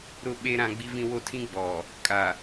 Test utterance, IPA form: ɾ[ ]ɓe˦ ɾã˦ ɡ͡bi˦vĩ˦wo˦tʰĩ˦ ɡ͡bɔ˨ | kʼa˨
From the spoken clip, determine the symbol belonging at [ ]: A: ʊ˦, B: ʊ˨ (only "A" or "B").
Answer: A